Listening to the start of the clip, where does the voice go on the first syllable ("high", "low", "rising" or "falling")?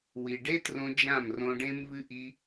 low